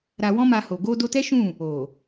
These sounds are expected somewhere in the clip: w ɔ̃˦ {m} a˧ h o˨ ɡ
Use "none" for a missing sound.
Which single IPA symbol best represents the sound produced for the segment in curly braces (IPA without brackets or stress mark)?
m